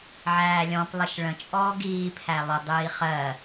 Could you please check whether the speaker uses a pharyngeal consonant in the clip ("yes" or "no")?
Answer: yes